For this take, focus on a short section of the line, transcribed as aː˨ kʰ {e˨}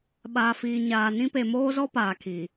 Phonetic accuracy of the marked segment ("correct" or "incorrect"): incorrect